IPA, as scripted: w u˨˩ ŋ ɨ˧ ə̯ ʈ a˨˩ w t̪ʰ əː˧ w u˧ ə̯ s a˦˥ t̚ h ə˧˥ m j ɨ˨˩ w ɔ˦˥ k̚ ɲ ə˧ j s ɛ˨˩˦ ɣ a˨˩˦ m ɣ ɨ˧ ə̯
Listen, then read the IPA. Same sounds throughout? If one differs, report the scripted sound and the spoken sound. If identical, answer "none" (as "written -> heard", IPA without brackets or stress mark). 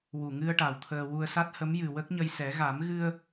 ɔ˦˥ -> ə˦˥